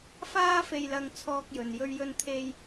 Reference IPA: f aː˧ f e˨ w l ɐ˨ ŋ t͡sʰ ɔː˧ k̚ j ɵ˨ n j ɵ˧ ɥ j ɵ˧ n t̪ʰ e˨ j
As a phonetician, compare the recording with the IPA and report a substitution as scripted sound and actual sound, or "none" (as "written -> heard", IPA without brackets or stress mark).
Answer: w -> j